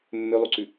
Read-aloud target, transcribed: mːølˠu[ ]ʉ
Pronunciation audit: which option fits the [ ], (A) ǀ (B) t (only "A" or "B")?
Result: A